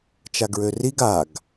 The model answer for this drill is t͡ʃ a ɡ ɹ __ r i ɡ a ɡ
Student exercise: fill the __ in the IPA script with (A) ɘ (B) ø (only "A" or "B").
B